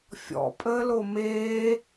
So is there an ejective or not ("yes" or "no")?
yes